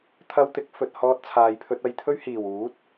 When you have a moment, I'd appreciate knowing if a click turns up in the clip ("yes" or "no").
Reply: no